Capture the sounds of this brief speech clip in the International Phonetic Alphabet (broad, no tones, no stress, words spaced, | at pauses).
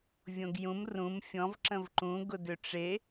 vʲõɡjũm rũm fʲɔ̃vǁə̃v ǃũɡʊ dʏʈ͡ʂe